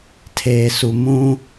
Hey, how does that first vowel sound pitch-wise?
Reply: low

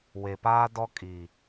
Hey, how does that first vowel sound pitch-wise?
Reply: low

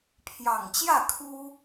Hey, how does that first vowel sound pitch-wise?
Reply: low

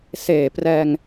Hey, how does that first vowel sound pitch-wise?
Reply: low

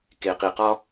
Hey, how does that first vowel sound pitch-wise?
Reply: low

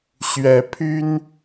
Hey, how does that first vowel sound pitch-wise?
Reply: rising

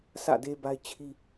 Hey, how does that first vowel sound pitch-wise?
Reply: falling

